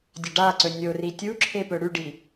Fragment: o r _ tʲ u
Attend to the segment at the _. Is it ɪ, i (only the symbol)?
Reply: i